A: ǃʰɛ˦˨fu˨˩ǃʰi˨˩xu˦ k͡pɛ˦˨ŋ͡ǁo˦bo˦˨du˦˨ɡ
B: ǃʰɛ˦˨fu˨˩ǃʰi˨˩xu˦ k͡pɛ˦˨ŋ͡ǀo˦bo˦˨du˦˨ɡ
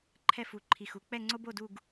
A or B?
B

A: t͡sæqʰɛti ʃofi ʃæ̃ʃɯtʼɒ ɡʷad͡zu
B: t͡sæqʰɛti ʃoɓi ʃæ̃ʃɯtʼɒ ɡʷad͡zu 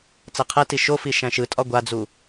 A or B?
A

